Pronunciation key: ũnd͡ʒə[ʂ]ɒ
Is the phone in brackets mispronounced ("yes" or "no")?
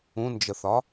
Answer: yes